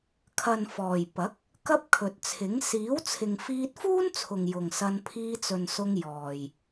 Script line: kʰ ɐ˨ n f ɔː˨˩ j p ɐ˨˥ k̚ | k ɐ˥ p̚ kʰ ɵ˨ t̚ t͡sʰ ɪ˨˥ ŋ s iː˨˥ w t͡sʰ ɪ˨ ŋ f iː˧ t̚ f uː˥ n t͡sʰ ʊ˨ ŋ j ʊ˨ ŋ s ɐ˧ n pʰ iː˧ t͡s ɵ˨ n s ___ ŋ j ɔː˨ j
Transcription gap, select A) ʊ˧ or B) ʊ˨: A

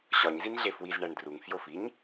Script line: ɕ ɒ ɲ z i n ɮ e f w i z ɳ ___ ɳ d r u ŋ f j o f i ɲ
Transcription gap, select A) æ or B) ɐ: A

